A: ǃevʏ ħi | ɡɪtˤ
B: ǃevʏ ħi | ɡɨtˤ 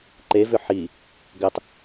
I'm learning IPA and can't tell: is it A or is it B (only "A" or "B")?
A